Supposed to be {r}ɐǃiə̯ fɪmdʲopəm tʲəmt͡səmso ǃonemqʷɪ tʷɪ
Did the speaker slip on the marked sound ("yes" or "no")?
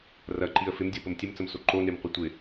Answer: no